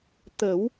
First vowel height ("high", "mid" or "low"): mid